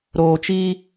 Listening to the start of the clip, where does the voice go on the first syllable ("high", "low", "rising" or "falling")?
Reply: low